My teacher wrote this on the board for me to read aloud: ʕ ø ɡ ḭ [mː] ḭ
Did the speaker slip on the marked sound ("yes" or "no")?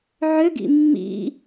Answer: no